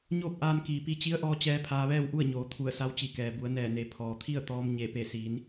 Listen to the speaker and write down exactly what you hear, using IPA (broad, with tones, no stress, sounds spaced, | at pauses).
ɲ oː˥˨ p̚ ʔ aː˧ n k iː˩ p i˧ t͡ɕ i˧˥ ə̯ ʔ ɔː˧ t͡ɕ ɛː˧ pʰ aː˧ ʋ ɛː˥˨ w ʔ u˥˨ ə̯ ɲ oː˩˧ t̪ʰ u˧˩ ə̯ s a˧˥ w t͡ɕ i˧˩ k ɛː˩ b u˩˧ ə̯ n ɛː˧˩ n e˩˧ pʰ ɔː˩ t̪ʰ i˥˨ ə̯ t̪ ɔː˧ m ɲ e˧˩ p e˧˩ s iː˩˧ n